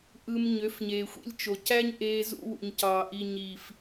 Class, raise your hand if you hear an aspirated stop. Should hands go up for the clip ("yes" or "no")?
no